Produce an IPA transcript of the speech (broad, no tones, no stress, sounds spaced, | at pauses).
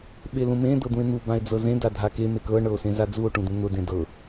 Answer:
ɓ e l ũ m ẽ d ɤ d̪ ũ e̯ n̪ u b ã e̯ d͡z ɤ z ẽ d a dʱ a k e m e k ɤ ɳ ɤ o̯ s ẽ z a d͡z u o̯ ʈ ũ d̪ ũ n̪ ʊ d ẽ d ɤ